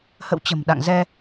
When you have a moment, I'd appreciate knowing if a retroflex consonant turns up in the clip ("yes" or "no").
no